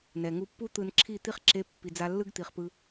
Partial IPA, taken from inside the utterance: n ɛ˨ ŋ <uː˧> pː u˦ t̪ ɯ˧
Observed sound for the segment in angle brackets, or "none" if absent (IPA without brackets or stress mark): u˧